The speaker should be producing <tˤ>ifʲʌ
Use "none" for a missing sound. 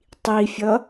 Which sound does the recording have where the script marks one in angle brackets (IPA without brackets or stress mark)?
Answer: tˤ